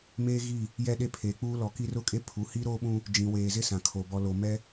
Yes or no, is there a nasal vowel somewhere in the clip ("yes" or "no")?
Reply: yes